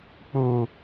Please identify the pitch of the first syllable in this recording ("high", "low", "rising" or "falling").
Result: low